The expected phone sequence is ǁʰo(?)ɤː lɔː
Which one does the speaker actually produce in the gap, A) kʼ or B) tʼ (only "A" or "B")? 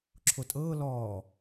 B